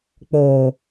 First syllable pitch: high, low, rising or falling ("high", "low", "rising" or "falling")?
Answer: low